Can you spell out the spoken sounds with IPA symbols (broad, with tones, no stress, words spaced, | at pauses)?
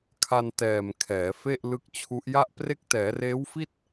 kʰa˧ntɛː˨˩m kʰɛː˩˦fe˥˩ʔlɯ˦˥k̚t͡ɕʰu˦˥ʔ ja˥˩ʔpre˥˩k̚ tɛː˩˦reː˦˥wfi˥˩t̚